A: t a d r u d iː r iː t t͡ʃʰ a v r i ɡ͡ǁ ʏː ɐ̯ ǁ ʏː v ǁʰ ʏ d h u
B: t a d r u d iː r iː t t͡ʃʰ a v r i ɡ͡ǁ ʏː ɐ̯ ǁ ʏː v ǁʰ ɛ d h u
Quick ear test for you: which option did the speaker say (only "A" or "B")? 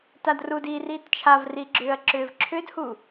A